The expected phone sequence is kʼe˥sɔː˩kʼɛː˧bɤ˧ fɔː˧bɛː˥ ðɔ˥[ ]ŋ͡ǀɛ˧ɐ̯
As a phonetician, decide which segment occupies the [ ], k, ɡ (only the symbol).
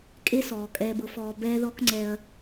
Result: k